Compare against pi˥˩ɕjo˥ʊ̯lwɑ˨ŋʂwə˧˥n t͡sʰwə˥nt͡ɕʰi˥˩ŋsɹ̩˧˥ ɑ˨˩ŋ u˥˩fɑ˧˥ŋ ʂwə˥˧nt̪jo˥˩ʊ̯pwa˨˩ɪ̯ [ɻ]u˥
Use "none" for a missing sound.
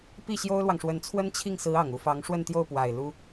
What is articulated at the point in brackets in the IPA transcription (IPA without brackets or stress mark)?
l